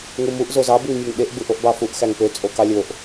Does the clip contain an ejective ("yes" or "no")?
yes